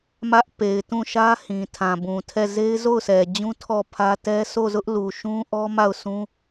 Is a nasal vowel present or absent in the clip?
present